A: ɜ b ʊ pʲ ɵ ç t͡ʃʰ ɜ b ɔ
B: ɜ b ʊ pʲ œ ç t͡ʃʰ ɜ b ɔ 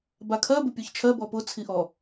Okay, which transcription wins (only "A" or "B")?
B